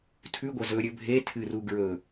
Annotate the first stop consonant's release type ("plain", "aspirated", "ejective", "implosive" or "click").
aspirated